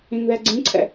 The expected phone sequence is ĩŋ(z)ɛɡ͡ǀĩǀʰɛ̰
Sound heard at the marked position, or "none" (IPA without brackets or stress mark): ð